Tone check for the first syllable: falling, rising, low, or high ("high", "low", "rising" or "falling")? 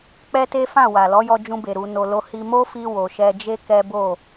high